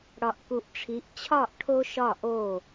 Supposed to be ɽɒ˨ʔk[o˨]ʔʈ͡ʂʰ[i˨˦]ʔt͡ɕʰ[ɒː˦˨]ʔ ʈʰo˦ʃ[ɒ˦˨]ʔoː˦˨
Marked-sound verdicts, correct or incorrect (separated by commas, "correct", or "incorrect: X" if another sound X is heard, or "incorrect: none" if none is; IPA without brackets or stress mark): incorrect: u˨, correct, correct, correct